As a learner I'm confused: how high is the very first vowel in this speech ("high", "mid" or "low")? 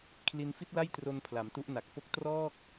high